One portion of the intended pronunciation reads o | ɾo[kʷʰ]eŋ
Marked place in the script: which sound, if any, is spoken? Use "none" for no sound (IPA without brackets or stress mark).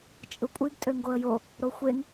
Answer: xʷ